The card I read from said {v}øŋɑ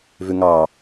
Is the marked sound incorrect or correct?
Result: correct